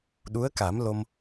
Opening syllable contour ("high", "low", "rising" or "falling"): rising